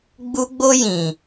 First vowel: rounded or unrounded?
rounded